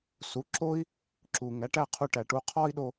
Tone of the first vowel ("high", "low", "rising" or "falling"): rising